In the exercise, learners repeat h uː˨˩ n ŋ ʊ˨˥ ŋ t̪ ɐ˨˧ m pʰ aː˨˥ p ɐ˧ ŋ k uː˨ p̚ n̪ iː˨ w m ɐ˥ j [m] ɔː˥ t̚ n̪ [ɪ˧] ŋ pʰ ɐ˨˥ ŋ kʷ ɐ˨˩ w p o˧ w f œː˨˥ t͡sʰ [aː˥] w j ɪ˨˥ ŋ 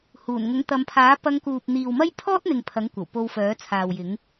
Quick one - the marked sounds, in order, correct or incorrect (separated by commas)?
incorrect, incorrect, incorrect